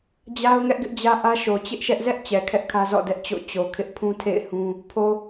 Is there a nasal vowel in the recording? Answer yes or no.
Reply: yes